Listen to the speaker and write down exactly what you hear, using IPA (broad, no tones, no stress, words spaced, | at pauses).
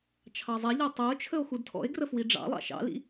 t͡ʃʰɑzˤɛʎɜ tˤæo̯t͡ʃʰəo̯ xudtʰɔ̰e̯ɡrə fwiɖ͡ʐɑ̰lˠɑ̰ ʃɑ̰lḭ